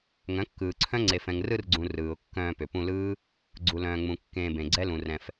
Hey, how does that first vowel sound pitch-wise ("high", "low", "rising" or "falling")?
rising